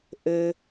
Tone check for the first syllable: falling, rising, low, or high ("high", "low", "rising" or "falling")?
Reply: low